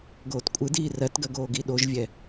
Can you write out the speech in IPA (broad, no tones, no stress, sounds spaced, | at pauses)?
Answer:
ɡ oː t kʷʼ ɯ d iː r ɜ t ɡ ɜ ɡ oː ɡ i ɗ o ʒ vʲ ɛ